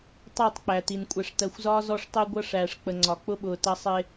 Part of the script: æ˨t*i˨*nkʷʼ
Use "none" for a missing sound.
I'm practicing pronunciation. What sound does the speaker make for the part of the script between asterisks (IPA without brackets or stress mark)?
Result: i˨